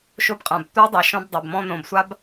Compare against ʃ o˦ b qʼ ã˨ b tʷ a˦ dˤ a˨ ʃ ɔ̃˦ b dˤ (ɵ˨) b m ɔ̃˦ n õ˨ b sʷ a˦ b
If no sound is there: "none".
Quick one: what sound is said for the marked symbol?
ɵ˨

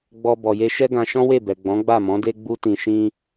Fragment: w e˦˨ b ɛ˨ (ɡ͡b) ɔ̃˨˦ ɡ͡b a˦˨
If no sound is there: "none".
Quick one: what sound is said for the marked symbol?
ɡ͡b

